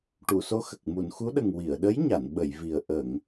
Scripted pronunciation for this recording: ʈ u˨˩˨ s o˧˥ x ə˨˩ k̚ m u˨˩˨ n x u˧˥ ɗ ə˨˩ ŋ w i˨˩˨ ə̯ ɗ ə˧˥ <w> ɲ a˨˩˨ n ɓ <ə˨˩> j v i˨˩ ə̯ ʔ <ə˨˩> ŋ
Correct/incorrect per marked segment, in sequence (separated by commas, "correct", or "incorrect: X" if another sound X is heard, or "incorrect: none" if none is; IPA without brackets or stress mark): incorrect: j, incorrect: ə˨˩˨, incorrect: ə˨˩˨